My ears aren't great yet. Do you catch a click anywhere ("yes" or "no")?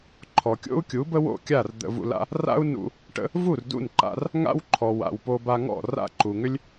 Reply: yes